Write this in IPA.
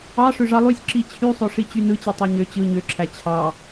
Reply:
ɑ ʂøʐɑlˠysʲ ǁit͡ɕʰysˤoʂi t͡ɕynɯt͡ɕi tˤɑɲø t͡ɕɯ ɲøǁʰæ t͡ɕʰɑ

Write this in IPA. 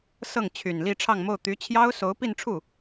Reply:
sɤ˥˩ŋt͡ɕʰy˨˩n li˥˧ʈ͡ʂʰɑ˥˧ŋmo˥˩ʊ̯ t̪y˧˥t͡ɕʰjɑ˥ʊ̯ so˧˥ʊ̯pi˥˧nʈ͡ʂʰu˥˩

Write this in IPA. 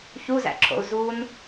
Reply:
çuzæ̰ǁʰo̰u̯ zun

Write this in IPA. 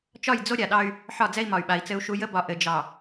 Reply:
t͡ʃɒ˦˨jd͡zo˦ ɾʲa˨ɗɑ˦y̯ | ħɒ˦˨d͡zɛ˦i̯mɒ˨y̯ɓa˨i̯ t͡sɘ˦u̯ʃu˦ jə˦bɒ˨ ʔɘ˨d͡ʒɑ˨

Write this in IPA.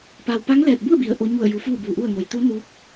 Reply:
pa˧w pa˧˥ŋlɛː˧˩t̚bu˥˨ə̯bi˩˧ə̯ ʔo˧˥ ɲu˧˩ə̯ju˩˧ fuː˥˨buː˧˩ʔu˥˨ə̯ ŋo˩jt̪u˧˥ nuː˧˥k̚

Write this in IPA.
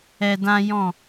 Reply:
ɛ˧dã˦jɔ̃˦˨

